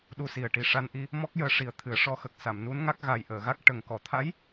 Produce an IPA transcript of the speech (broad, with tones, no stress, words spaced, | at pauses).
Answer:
ɗu˧si˨˩ə̯ ʈi˨˩ʂa˧nʔi˧ | mɔ˦˥k̚jəː˧ʂi˨˩ə̯ t̪ʰɨ˨˩˦ə̯ʂɔ˧˥ xə˨˩k̚ sa˨˩˨mnu˧˥nŋa˦˥k̚ɣa˨˩j ʔəː˨˩˨ɣa˦˥k̚ ʈə˨˩ŋ kɔ˨˩˨t̪ʰa˧˥j